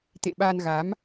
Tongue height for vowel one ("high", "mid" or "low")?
mid